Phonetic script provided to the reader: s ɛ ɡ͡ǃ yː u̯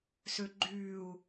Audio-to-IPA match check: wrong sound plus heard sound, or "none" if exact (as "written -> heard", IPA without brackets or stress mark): ɛ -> ø